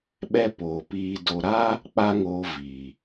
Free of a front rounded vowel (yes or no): yes